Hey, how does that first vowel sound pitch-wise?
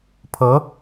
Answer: rising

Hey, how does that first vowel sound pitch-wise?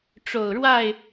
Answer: low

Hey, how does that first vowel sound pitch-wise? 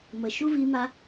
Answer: low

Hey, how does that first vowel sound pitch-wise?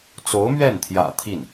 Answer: rising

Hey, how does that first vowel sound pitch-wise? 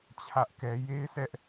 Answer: high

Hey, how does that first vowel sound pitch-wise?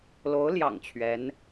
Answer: rising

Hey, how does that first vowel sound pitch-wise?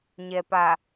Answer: low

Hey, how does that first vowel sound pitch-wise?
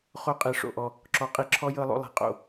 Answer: high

